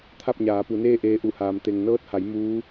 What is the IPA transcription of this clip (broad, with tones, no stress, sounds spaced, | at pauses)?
t̪ʰ a˥˨ p̚ ɲ aː˩˧ p u˩˧ n eː˥˨ ʔ eː˧ ʔ u˧˩ h aː˩ m t̪ e˩ ŋ n ɤː˧˥ t̚ h a˩˧ j m uː˧˥